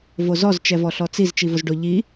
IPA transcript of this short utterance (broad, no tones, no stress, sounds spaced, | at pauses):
v o z ɔ z t͡ʃ ɛ v ɔ ɬ ɔ t͡s i z t͡ʃ i v ʊ z ɖ ʊ ʎ i